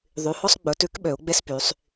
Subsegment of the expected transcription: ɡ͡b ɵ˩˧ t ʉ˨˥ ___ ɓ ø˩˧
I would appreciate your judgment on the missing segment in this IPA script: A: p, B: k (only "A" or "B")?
B